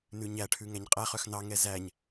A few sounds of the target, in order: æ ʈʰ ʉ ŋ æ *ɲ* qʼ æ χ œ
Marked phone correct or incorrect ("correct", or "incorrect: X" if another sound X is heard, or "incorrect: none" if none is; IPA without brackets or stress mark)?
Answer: correct